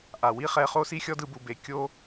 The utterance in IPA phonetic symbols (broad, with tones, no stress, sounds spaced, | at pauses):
ʔ a˩ w i˥ χ ɛ˧ χ o˥ s i˥ xʲ ɔ˥ d ɯ˧ b u˩ b e˩ kʲ o˥